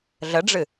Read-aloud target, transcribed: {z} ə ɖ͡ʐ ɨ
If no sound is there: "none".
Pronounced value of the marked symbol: ɮ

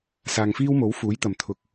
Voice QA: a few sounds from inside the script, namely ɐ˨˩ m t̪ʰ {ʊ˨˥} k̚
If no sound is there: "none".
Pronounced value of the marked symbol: ʊ˨˥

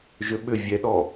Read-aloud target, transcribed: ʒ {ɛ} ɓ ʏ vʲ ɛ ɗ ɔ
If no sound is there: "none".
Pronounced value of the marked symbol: ʏ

